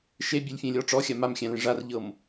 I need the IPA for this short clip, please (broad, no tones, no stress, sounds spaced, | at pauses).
ʃ e bʲ e lʲ fʲ ẽ lʲ ɔ ʈ͡ʂ ɔ xʲ a m a m xʲ æ̃ l ẽ ʐ a r ʎ ɤ m